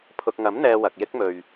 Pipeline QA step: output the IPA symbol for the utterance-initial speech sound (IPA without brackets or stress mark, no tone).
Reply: pʰ